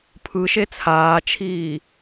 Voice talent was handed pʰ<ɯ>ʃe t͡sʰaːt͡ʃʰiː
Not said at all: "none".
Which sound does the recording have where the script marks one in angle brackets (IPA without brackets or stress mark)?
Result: ɯ